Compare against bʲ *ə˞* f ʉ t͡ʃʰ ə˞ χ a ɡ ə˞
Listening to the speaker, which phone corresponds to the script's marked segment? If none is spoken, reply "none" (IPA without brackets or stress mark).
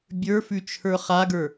ə˞